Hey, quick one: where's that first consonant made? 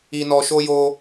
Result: tongue tip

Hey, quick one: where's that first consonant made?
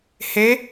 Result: throat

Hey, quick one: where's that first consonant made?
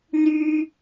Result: tongue tip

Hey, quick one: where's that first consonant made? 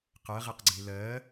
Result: uvula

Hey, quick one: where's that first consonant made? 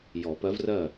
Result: palate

